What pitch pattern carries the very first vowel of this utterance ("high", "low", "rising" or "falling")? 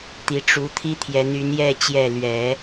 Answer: rising